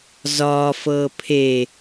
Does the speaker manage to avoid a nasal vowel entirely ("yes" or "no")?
yes